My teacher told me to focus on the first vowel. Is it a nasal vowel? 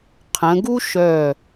yes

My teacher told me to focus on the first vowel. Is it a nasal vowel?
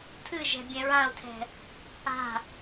no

